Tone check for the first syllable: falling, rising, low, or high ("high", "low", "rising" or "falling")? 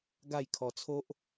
falling